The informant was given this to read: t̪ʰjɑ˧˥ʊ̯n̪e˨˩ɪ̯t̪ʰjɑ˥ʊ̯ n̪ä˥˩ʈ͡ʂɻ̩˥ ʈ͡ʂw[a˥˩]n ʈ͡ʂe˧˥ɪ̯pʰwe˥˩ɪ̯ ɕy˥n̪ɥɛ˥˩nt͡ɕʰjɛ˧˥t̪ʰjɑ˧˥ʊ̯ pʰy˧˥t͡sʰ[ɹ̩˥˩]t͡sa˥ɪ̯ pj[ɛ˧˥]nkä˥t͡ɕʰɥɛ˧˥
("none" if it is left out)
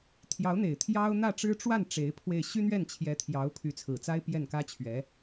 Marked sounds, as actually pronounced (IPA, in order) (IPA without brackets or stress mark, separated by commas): a˥˩, ɹ̩˨˩, ɛ˥˩